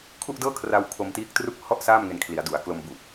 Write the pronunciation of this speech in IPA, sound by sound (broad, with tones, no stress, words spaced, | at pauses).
kʰu˥˩ʔdɤː˥˩kʰra˧w kʰo˧mtiː˦˥k̚tru˥˩k̚ hɔ˥˩ʔ saː˥˩mŋe˧n kʰli˩˦a̯du˩˦a̯ klo˧mbu˨˩ʔ